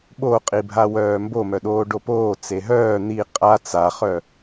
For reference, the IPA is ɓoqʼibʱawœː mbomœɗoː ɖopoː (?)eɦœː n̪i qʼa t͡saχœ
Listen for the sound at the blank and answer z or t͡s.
t͡s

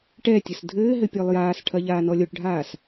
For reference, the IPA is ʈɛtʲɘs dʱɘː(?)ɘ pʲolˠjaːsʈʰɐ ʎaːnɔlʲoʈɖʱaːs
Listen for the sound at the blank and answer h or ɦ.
ɦ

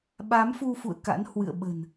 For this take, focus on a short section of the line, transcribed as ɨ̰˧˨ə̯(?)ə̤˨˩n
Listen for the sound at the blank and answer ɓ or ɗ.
ɓ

